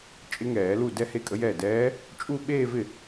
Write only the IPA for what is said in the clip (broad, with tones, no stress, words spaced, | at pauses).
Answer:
t͡ʃʼɪ˧˥ŋɛː˨˩˦lu˥˩ dɛ˥˧he˥˩kʼə˧˥jɛː˥˩ dɛː˧˥ | t͡ʃʼu˥˧ɓeː˥˧vɪ˥˩